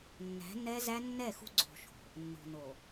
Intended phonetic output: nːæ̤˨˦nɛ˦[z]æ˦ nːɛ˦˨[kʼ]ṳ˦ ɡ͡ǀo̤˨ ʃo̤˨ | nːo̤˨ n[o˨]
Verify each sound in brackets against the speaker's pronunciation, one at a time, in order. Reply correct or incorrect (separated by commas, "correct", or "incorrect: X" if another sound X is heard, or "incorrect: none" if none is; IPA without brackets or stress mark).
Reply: correct, incorrect: x, correct